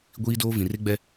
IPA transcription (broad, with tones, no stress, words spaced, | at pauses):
ɡʷiː˦doː˦ vĩ˨re˦ɡ͡bɛ˦